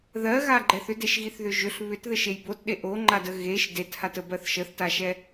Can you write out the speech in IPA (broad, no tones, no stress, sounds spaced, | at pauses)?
ð ɜ ɣ a ɡ͡ǃ ɛ θ ʏ d e ʃ ɣ i θ ð ʏ ʒ ʏ ɬ β ʏ t ð ɘ ʃ e j b o t ɗ e ʔ o ŋ͡ǃ a d ə ɣ e ʃ d e t h a t ə b ɜ θ ʃ ə θ t a ʃ ɛ